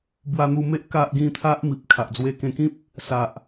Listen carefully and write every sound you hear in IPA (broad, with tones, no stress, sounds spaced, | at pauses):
b w a˧ n̪ u˧ m e˦ ʔ k a˦ ʔ ɡ ĩ˥˧ t̪ʰ a˦ ʔ m i˨ p̚ kʰ a˨ ʔ d͡z w e˧ k ẽ˧ k ĩ˦ p̚ | s a˨ ʔ